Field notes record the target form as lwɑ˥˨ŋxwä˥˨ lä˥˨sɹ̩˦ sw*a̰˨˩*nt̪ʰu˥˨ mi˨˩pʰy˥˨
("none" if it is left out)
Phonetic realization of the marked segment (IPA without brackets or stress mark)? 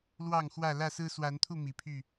a˨˦